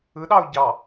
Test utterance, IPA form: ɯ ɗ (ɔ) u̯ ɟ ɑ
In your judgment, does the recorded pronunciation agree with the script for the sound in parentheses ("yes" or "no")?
no